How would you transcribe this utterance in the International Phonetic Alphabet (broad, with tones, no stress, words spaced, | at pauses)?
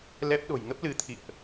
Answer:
lɛ˦˥p̚ ɗo̤˨˩jŋə˦˥p̚lɨ˨˦t̪ʰḭ˧˨ə̯ʔ